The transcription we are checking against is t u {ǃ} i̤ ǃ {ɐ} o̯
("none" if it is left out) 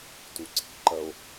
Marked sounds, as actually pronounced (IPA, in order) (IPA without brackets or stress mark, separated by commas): ǀ, ɐ